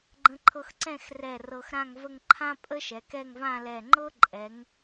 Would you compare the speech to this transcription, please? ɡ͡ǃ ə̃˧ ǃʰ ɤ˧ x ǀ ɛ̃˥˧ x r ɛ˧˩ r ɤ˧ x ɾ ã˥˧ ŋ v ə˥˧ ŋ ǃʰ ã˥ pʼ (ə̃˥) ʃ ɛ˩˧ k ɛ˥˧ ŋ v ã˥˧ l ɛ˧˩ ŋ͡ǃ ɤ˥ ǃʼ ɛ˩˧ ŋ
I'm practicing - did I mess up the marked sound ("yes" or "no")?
yes